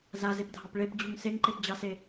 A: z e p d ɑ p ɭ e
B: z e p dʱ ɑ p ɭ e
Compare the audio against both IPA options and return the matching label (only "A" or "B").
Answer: B